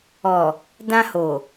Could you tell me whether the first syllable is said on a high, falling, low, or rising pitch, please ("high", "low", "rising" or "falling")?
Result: low